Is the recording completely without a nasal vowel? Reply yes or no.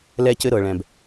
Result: no